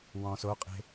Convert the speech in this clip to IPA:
wɔ̃ soqʼe̤

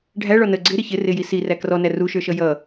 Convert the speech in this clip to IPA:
ɖʱæ ɭɔnə ɡ͡ǀɪ ɾɪçɪ rɪji si rækrɔnæ ruʃə˞ʃʌ jʌ

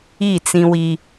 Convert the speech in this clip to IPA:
i˦˨t͡sĩ˦wi˦

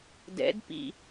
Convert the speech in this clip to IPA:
dɛ̰dpḭ

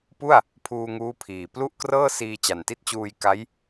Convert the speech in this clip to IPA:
pu˥˩a̯ | pʰuː˧ŋuː˦˥ pʰiː˨˩ plu˥˩ʔkrɤː˥˩ siː˧t͡ɕa˨˩nti˥˩t̚t͡ɕuː˧j ka˦˥j

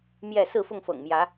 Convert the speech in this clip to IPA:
mjɛ˥˨ sɹ̩˥˨fʊ˥˨ŋfɤ̰˨˩ŋmjä˨˦

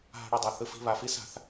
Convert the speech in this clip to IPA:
ɦa̤˧ ɽo˧dˤa˩θɯ˧ fi̤˧βa˩fi˥sa̤˧θ

